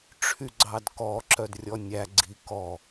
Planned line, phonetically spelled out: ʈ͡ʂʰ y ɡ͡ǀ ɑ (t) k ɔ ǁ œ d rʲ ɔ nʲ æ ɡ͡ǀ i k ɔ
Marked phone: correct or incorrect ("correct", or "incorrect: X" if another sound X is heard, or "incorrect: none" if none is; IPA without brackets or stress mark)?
incorrect: d